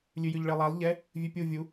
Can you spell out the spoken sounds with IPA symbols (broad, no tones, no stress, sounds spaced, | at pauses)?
lʲ ʉ j ʉ ʎ ɭ e lˠ a lˠ ʎ ɛ | vʲ ʉ pʲ u vʲ u